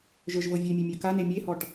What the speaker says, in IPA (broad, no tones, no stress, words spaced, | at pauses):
ʒə˞ʒvɤvʲemʲe mʲə˞kane mʲehɔʈ